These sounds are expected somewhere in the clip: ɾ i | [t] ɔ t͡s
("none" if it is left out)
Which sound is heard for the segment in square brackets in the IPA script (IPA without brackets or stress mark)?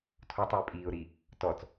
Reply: t